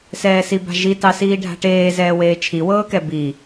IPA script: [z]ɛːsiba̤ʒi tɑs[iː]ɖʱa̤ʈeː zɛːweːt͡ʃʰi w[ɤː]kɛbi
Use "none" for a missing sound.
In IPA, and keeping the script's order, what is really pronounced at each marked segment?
s, iː, ɤː

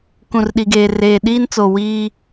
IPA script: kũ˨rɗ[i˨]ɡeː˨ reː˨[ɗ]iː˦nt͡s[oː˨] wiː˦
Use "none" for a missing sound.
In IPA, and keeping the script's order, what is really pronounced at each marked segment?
i˨, ɗ, o˨

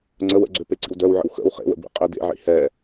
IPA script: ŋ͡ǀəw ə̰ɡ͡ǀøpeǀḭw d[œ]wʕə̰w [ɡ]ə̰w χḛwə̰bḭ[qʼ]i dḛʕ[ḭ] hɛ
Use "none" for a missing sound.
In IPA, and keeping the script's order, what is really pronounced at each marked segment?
œ, x, qʼ, ḭ

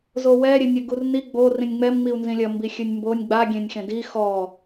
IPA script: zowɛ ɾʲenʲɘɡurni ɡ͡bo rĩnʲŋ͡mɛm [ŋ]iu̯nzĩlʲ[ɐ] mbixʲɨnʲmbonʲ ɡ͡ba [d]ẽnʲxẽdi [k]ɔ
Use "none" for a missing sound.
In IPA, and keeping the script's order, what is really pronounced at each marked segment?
ŋ͡m, ɐ, ɡʲ, x

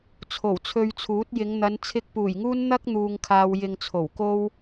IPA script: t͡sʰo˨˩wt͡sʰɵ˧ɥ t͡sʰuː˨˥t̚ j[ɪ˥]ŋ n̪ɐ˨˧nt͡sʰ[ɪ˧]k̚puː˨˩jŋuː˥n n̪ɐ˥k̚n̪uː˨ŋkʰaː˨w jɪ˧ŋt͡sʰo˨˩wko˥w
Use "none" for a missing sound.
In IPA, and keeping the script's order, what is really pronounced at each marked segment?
ɪ˨˧, ɪ˧

